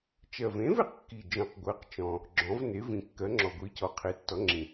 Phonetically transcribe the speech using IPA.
t͡ʃ ɜ˨˩ v ẽ˩˥ v e˨˩ q kː i˨˩ d͡ʒ ɔ̃˨˩ q ɡʷ ɜ˩˥ q t͡ʃ ɔ̃˨˩ | ɡ͡ǁ ɔ̃˩˥ v n e˩˥ v ĩ˨˩ kː ɜ˩˥ ŋ͡ǁ ɔ˨˩ ɡʷ i˩˥ c ɔ˩˥ qʰ e˩˥ tː ɔ˩˥ ŋ͡ǁ ĩ˨˩

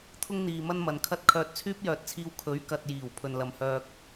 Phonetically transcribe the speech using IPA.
t̪ʰ ʊ˥ ŋ n̪ iː˨ m ɐ˥ n m ɐ˨ n kʰ ɐ˥ t̚ kʰ œː˧ t̚ t͡sʰ yː˥ p̚ j œː˨ t̚ t͡sʰ iː˧ w kʰ ɵ˨˥ ɥ k ɐ˨ t̚ j iː˨˩ w pʰ ɵ˨ n l ɐ˨ m h œː˧ k̚

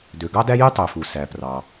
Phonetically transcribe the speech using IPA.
d ø˩ ɡ ɑ˥ d æ˥ j y˥ tˤ ø˩ f u˩ s æ˩ p r ɑ˩

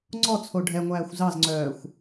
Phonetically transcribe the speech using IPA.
ŋ͡ǀ ɔ t͡sʰ o ɖʱ ɛ ŋʷ æː xʷ z ɑ z ŋ͡ǀ œː xʷ

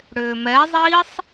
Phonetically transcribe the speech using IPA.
ɽ ʏː m ɛ zˤ iː sˤ

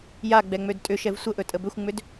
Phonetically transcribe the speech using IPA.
j a ɡ͡b ɛ ŋ͡m ø d tʼ ʏ ʃ ɛ v sʷ ə ʔ ɵ tʼ ə b ʏ xʷ ŋ͡m ʏ d

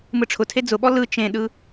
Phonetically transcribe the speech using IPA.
m ɯ ʈ͡ʂʰ ʊ tʰ e d͡z ʊ ɓ ɔ l ɯ t͡ʃ ẽ ɗ ɯ

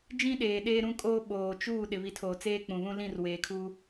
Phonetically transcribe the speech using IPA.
d͡ʒ ĩ˦ ɗ eː˨ ɗ eː˦ ɾ ũ˦ kʼ oː˦ ɓ oː˨ t͡ʃ uː˦˨ ɗ ɪ˨ β i˨ tʰ oː˨ t͡s eː˦ k͡p ũ˨ β ũ˦ l ĩ˦˨ r w eː˨ kʰ u˦

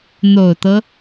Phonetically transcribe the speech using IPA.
n̪ o˨˩ ʊ̯ t̪ ɤ˦

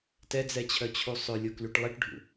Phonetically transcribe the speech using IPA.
t ɛ d͡z ɛ t͡ɕʰ œ t͡ɕʰ u sˤ ø lʲ o k l y ʈ lˠ i ʈ ɖʱ ṵ

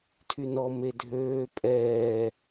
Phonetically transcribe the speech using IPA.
tʰ y n ɔ m e dʱ øː pʼ ɛː

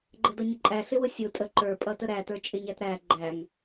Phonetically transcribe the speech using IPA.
ɡ͡ǃ ə d ʌ ɲ ə ǃʼ æ ɬ ɪ w ʊ sʲ ʊ tʼ ə ǃ ə˞ pʼ ʌ t ə ɾ æ t ə˞ t͡ʃʼ ɪ ɲ æ t ɾ æ ɡ͡ǃ æ ŋ

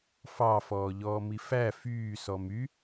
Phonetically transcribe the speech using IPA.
f ɑ f ɔː ʎ ɔː m i f æ f yː s ɔ m y

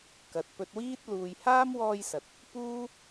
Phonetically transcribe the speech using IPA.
k ɐ˨ t̚ p ɵ˧ t̚ w iː˥ t̚ l uː˨ j h aː˥ m w ɔː˧ j s ɐ˨ t̚ | p uː˥

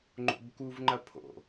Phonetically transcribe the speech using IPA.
ŋ͡ǃ o̰ b k u v ŋ͡ǃ ɐ pʰ o̰

